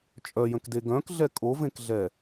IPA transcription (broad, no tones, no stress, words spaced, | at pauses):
t͡ʃʼœjə̃kde ɡœ̃kɮɛ kʼovẽkɮɛ